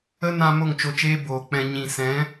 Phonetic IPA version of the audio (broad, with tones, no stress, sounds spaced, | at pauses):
ə˦ n ã˧ m o˦˨ ŋ t͡ʃ o˧ t͡ʃ eː˦ b oː˨ k͡p ɛ̃˧ ɲ ĩ˨ s ɛ̃˨˦